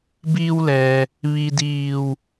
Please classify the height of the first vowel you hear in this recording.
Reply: high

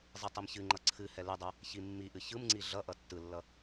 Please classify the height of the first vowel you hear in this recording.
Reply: high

